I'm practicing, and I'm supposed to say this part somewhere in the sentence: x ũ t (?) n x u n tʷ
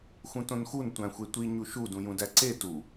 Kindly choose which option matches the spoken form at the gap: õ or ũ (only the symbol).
õ